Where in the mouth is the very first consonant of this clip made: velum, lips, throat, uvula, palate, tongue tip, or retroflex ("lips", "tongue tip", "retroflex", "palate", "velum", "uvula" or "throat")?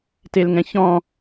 tongue tip